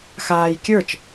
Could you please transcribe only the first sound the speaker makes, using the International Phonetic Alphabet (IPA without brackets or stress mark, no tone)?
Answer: x